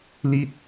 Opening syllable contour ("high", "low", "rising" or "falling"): falling